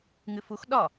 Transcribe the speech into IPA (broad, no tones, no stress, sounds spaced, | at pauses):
ŋ ɨ f u x ɗ ɒ